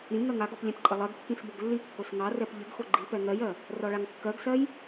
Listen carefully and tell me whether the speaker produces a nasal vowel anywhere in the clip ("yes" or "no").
yes